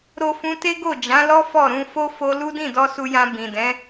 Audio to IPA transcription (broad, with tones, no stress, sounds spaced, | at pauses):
ɾ o˧ f ũ˧ t e˦ ɡ o˦˨ d͡ʒ ã˨˦ l ɔ˦ f ɔ˦˨ ɾ ũ˧ f o˦ f o˧ l u˦ d ĩ˦˨ d ɔ˧ s u˧ j ã˧ b ĩ˨ d ɛ̃˨˦